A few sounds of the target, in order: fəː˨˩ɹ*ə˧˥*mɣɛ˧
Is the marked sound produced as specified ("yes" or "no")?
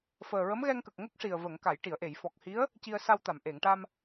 yes